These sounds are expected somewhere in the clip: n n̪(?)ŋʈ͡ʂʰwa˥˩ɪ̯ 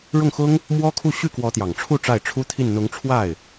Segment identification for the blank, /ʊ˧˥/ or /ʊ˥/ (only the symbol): ʊ˧˥